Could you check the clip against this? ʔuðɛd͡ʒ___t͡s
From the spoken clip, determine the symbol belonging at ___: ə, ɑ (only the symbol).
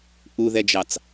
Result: ɑ